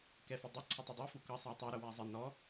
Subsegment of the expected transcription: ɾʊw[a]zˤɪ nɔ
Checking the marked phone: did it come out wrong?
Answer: yes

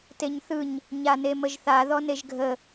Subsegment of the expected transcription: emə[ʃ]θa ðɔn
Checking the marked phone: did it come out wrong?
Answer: yes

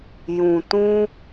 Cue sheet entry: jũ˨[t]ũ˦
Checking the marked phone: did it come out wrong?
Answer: no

